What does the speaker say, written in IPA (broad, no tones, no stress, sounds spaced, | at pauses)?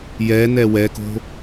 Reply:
j ɛ n ɛ w ɛ k o̤